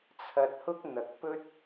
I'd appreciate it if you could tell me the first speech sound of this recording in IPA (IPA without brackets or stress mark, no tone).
t͡sʰ